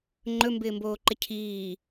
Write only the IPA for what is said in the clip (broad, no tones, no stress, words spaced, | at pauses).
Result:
ŋ͡ǃɵmbɪːmboːǃɪ cʰiː